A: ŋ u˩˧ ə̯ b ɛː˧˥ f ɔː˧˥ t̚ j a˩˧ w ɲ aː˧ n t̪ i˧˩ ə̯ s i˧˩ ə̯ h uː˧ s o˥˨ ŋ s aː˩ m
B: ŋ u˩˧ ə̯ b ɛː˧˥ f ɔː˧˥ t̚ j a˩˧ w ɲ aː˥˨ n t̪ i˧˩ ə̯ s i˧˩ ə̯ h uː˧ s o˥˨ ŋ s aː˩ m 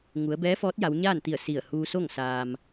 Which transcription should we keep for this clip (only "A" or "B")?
B